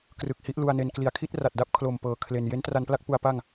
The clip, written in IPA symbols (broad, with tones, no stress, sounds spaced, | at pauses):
k r ɯ˨˩ k̚ h i˦˥ ʔ l u˧ a̯ n e˧ n k l i˨˩ a̯ kʰ i˥˩ t̚ r a˨˩ t̚ d a˦˥ p̚ kʰ l o˨˩ m p ɤː˨˩ kʰ l e˨˩ n j e˦˥ n t r a˧ n p l a˥˩ k̚ p u˦˥ a̯ p a˥˩ ŋ